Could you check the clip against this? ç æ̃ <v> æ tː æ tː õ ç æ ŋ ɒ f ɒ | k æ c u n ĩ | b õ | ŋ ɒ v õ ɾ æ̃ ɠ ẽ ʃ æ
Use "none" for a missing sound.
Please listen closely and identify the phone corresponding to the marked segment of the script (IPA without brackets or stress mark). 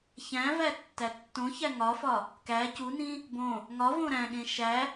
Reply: v